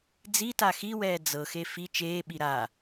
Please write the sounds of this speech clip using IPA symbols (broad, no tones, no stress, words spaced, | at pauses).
d͡zita xiwɛː d͡zɤxe fi t͡ʃeːɓi ɾa